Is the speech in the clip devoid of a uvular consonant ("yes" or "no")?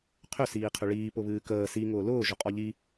no